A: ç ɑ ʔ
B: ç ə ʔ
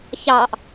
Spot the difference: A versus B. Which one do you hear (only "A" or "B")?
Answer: A